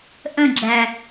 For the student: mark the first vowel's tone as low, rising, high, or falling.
falling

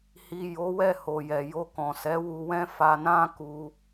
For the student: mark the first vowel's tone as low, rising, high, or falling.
low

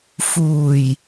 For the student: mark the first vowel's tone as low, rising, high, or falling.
low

